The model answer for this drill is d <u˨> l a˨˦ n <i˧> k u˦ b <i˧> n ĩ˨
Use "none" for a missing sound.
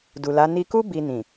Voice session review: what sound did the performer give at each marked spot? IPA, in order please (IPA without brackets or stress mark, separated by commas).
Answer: u˨, i˧, i˧